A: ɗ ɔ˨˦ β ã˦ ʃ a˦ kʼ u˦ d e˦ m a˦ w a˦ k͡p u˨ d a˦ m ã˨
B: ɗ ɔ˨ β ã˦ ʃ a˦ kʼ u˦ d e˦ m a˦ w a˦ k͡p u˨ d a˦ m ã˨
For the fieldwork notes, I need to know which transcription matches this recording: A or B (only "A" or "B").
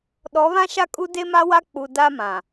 A